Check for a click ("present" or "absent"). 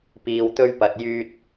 absent